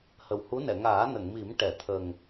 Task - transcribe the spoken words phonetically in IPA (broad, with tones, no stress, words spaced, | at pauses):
hə˨˩whu˧˥nɛ˨˩˨ ŋaː˨˩˦nə˨˩˨ŋmi˨˩˦m ʈɛ˨˩˨t̪ʰə˨˩ŋ